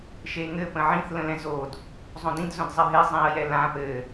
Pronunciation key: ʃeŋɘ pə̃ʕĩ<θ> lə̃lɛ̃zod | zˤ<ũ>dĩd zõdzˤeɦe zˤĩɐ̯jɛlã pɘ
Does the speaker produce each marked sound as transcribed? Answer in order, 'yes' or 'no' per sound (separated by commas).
yes, no